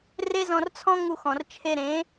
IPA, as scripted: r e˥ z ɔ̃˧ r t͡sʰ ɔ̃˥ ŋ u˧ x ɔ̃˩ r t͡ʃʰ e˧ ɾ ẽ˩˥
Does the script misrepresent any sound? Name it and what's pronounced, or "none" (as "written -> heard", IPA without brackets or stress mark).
none